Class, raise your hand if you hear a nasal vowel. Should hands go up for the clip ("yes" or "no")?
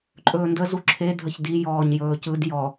no